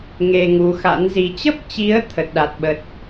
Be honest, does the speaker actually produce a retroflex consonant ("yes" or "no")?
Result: no